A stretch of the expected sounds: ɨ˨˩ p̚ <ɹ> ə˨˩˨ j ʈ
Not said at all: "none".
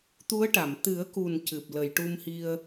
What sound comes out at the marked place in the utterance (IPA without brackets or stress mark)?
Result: l